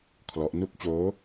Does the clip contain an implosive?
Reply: no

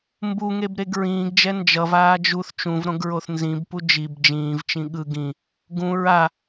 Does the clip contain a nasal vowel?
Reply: yes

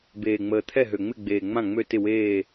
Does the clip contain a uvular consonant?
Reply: no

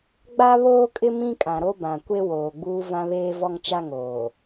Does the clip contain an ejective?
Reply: yes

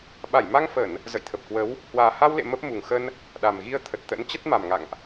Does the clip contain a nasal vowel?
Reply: no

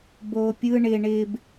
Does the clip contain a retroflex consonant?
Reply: yes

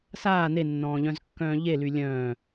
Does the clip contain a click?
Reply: no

